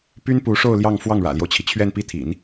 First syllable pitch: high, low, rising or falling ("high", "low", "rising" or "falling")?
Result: high